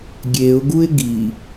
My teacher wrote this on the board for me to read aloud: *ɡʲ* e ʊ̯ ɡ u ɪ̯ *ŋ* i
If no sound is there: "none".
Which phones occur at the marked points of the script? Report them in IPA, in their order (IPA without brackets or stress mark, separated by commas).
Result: ɡʲ, ɡ